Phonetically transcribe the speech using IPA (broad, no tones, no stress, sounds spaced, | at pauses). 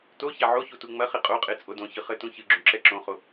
t o ç a ʕ o ç u t u ŋ͡m ɐ χ i qʼ o qʼ e t͡sʼ o d õ ç ɨ χ ɘ t ũ ç ɨ ɡ͡ǁ ũ ǁ ɛ ǁ õ χ o